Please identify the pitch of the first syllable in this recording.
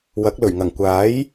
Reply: rising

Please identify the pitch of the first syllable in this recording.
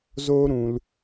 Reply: high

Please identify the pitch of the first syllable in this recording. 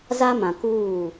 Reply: high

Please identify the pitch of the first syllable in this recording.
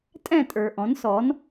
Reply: falling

